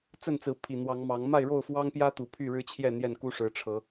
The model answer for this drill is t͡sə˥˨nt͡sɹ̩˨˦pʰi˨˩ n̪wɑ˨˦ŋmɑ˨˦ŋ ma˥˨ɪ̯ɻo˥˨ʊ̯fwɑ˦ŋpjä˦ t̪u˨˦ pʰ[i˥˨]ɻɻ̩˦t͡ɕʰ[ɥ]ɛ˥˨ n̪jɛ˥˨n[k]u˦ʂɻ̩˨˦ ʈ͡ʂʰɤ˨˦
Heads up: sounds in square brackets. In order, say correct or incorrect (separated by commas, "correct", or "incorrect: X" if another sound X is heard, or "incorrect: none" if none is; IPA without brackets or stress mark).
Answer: incorrect: y˥˨, incorrect: j, correct